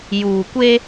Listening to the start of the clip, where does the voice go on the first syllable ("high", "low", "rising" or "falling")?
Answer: low